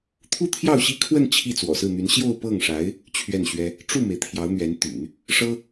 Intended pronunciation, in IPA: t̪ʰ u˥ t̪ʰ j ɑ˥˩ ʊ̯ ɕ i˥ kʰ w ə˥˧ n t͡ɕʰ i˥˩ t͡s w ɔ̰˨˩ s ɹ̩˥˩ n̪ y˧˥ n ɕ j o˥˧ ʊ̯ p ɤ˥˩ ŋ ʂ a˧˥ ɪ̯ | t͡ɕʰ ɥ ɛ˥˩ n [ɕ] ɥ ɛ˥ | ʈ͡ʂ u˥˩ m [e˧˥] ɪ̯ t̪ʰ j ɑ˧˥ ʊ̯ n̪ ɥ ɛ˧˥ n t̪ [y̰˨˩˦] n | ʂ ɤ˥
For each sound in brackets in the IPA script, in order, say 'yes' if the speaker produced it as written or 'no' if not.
yes, no, yes

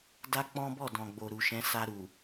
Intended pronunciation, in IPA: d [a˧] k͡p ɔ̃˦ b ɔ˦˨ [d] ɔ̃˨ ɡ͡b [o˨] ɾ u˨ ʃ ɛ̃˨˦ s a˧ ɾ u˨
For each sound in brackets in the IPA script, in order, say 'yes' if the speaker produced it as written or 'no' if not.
no, yes, yes

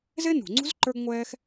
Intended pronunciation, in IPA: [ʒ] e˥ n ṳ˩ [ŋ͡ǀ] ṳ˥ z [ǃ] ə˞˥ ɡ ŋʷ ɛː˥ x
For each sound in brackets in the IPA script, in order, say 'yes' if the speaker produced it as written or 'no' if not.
no, yes, yes

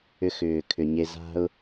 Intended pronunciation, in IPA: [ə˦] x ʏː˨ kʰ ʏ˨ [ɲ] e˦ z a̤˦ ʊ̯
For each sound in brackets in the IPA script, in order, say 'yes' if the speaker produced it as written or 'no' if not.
no, yes

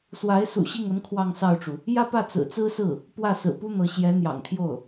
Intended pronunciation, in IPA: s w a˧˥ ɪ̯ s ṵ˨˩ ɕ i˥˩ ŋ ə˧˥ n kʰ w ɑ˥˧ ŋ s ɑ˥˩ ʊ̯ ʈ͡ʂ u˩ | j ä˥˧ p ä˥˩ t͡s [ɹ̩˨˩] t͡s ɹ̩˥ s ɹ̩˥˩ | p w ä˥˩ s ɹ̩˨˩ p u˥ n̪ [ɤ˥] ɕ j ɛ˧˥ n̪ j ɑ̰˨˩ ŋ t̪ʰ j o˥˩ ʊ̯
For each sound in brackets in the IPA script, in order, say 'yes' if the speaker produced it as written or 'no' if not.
yes, no

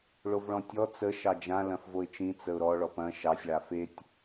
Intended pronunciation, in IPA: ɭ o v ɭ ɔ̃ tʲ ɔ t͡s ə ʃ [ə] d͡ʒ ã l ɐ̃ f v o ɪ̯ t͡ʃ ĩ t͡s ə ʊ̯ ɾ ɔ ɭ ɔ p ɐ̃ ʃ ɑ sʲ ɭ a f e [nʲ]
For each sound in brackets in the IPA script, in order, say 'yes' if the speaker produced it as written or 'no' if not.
no, no

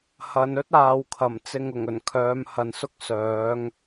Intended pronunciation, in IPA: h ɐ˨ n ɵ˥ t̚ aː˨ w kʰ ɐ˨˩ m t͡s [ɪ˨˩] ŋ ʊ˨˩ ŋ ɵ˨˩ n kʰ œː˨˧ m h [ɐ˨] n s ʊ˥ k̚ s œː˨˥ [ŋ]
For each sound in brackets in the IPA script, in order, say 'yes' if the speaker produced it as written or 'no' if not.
no, yes, yes

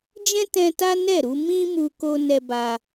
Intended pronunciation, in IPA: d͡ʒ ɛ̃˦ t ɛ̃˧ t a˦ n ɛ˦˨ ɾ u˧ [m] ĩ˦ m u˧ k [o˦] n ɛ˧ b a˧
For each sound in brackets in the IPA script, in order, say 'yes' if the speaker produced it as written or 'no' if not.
yes, no

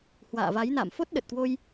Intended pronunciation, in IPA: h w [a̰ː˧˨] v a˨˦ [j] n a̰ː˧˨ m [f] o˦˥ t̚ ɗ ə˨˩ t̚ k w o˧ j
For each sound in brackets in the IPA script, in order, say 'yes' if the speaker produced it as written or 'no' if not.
yes, yes, yes

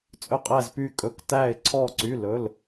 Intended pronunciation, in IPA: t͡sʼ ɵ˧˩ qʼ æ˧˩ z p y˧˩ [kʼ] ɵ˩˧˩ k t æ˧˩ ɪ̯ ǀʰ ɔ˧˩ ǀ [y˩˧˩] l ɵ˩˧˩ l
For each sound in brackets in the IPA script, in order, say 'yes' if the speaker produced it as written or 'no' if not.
yes, yes

